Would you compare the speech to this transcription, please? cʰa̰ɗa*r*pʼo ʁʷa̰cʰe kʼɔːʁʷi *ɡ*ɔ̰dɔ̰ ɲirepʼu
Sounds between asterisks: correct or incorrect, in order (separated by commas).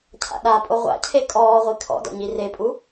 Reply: incorrect, incorrect